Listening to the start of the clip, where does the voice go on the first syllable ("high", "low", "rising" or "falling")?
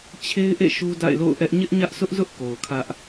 high